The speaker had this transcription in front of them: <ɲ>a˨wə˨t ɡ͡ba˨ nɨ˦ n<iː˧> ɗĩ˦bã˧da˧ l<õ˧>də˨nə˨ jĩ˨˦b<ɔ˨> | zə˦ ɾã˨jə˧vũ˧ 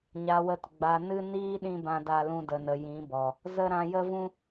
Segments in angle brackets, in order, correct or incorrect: correct, incorrect: iː˦, incorrect: ũ˧, correct

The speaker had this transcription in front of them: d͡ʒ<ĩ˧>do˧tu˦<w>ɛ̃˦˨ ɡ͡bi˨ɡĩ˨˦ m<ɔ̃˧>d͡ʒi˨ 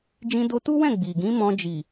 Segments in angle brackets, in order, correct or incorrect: correct, correct, correct

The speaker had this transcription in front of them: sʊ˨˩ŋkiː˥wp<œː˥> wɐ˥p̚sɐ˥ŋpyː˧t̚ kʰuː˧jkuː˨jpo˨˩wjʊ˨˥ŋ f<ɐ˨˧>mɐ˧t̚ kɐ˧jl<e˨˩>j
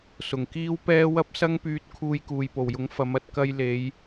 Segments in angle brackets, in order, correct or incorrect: incorrect: ɛː˥, correct, incorrect: e˨˧

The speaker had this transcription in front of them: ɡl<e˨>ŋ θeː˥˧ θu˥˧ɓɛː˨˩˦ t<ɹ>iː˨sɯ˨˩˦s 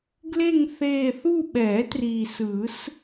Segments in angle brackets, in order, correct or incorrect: incorrect: e˥˧, incorrect: r

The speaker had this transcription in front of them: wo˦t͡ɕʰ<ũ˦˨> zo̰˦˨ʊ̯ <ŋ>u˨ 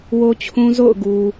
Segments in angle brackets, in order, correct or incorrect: incorrect: ũ˦, incorrect: ɡ

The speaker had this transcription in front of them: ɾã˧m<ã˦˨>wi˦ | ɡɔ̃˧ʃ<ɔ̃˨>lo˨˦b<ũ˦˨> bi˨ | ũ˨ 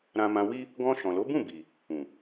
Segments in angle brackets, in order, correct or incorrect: incorrect: ã˧, correct, correct

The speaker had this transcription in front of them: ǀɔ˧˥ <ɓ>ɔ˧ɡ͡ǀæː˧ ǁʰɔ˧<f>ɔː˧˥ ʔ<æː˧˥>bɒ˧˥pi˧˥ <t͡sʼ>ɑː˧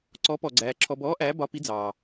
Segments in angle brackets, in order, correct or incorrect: incorrect: p, incorrect: b, correct, incorrect: d͡z

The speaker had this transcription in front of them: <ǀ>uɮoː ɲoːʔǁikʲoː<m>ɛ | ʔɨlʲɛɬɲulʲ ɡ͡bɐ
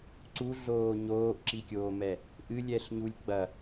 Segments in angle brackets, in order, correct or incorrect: correct, correct

